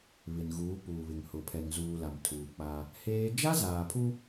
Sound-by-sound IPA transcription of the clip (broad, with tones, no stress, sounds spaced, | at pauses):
β ɪ˨ n ɣ uː˨˦ p uː˨ β ɪ˨ ŋ h ʊ˨ pʰ ɛ˨ ŋ z uː˨ l a˨ m tʰ uː˨ k͡p a˦ | h eː˦ d͡ʒ a˦ z aː˨ pʰ u˦